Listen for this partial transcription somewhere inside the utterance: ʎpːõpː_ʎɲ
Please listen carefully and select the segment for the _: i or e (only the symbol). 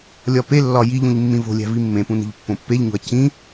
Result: e